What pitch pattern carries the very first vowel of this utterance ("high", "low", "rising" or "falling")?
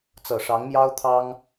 low